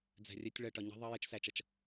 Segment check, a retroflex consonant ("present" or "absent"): present